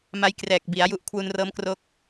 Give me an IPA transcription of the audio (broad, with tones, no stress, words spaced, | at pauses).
ma˧jkrɛː˨˩k̚bi˩˦a̯ ju˨˩ʔ kʰwu˧nrɤː˦˥mkro˥˩k̚